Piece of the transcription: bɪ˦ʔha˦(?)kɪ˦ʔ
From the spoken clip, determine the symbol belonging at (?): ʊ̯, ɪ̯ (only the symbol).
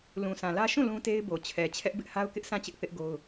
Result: ʊ̯